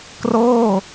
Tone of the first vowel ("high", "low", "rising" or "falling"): falling